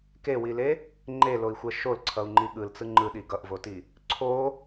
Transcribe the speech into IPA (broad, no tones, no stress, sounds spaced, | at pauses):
k e w i l e | ŋ͡ǃ e l o i̯ xʷ ɛ ʃ o l ǀʰ ʌ u̯ ŋ͡ǃ i ɠ ɯ l t͡s ɯ ŋ͡ǃ ɯ ɗ i ɡ ʌ ʔ v o t i | ǀʰ o